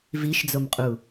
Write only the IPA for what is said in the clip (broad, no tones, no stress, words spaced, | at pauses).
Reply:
viʃd͡zomqʼu